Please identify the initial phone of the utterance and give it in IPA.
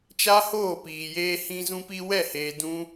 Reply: t͡ʃ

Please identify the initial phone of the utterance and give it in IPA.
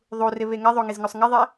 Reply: ðˤ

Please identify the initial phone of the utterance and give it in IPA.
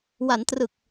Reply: w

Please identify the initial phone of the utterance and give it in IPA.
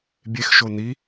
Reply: bʲ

